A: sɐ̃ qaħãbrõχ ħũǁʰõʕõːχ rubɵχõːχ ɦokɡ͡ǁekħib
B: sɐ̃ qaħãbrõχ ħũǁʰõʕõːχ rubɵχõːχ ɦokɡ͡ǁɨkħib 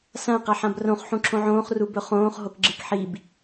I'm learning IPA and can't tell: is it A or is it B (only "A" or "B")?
B